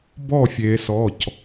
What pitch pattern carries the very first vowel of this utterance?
falling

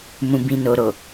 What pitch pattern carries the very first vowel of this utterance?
low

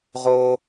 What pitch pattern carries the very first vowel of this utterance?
high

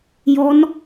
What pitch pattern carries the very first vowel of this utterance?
rising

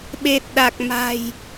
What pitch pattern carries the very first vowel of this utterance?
low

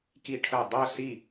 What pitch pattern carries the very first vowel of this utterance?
high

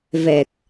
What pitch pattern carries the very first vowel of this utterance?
low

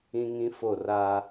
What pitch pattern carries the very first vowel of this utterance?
high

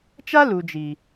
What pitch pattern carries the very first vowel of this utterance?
high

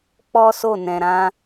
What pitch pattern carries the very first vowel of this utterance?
high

